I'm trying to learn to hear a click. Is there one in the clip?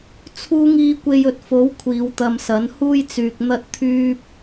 no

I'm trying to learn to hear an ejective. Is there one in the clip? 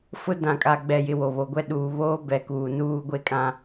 yes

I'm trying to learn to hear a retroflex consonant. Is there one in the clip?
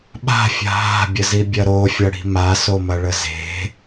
yes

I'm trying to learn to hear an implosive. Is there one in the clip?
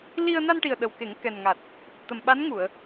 yes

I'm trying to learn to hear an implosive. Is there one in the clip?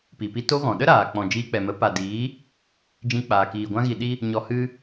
yes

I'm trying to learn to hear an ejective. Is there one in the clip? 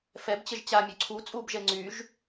yes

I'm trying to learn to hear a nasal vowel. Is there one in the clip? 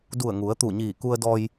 no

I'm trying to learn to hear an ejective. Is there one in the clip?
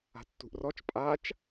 yes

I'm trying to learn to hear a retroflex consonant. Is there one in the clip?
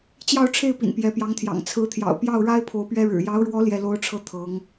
yes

